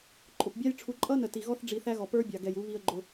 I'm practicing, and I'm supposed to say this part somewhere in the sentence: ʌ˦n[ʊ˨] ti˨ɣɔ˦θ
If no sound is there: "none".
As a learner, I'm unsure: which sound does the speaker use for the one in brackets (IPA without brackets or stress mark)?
ə˨